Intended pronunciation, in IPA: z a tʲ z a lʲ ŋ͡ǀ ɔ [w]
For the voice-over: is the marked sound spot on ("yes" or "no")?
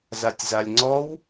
yes